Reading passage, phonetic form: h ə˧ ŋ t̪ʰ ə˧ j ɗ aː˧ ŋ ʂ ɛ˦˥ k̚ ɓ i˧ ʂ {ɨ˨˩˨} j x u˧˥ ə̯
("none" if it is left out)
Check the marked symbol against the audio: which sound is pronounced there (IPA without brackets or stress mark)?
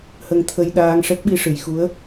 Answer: ɨ˨˩˨